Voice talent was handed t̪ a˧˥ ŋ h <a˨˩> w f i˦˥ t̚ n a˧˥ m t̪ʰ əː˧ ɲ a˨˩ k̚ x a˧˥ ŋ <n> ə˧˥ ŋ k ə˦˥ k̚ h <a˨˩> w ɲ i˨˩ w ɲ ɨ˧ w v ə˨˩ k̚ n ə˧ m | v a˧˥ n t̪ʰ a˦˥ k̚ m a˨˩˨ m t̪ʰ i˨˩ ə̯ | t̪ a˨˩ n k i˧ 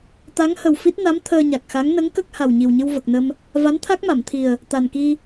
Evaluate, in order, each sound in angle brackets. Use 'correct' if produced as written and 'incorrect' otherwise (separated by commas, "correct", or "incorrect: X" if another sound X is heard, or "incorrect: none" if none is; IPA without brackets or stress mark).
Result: incorrect: ə˨˩, correct, correct